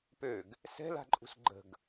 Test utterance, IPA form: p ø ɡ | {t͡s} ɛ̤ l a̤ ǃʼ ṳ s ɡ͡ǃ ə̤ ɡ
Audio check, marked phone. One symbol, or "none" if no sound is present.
s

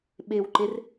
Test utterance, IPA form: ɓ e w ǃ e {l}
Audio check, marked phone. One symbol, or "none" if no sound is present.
r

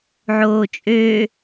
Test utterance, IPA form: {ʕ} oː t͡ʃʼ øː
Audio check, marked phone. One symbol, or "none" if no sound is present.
ʕ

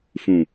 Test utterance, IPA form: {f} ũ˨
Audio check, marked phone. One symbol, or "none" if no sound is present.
f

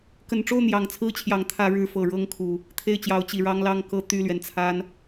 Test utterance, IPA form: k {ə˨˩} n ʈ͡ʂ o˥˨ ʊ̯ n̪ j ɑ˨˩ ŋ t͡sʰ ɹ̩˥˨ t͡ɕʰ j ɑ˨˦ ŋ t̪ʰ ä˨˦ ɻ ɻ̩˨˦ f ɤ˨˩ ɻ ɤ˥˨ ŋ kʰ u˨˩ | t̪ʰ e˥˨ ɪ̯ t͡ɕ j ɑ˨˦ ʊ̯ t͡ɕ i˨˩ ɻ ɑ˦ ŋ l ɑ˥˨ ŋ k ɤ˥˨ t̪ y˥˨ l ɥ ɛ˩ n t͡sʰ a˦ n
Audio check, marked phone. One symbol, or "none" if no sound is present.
ə˨˩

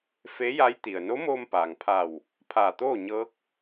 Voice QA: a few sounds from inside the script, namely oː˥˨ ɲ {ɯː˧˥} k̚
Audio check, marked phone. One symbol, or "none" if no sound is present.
ɤː˧˥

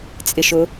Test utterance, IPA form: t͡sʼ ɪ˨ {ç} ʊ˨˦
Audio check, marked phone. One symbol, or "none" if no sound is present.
ʃ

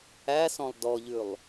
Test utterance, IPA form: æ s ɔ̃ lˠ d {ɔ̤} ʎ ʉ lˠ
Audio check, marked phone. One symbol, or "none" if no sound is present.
ɔ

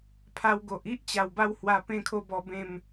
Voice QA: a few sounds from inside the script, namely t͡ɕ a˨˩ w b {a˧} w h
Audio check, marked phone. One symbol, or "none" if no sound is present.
a˧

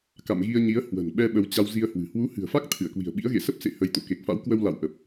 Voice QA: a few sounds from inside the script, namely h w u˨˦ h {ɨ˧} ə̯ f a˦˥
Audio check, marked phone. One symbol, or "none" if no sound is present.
ɨ̤˨˩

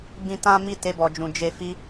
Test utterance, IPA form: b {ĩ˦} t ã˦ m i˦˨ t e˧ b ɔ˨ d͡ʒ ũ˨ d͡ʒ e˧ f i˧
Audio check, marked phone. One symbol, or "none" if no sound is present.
ĩ˦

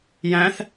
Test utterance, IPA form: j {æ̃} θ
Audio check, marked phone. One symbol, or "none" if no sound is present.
æ̃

